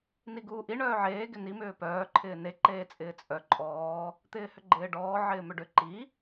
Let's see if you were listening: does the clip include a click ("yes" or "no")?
yes